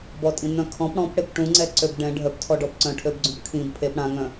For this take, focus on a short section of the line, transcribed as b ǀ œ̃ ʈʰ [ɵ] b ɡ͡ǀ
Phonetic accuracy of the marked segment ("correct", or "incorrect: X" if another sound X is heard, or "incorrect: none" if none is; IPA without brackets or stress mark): incorrect: ø